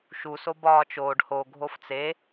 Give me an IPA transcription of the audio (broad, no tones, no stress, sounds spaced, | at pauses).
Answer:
ʃ u s o b ɒː t͡ʃ oː ɖ h o ɡʱ o f t͡s e